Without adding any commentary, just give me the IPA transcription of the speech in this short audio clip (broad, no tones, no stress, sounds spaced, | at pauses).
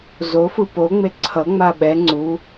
z o f ɯ p o ŋ͡m e ǀʰ ʌ ŋ͡m a ɓ ɛ ŋ͡ǀ u